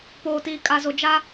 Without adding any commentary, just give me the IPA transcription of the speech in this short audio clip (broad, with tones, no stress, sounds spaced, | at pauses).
p oː˨ t iː˨ kʼ a˨ z o˨ d͡ʒ a˦